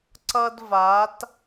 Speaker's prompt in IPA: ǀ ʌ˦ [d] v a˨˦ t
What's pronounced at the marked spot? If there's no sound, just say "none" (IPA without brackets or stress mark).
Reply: d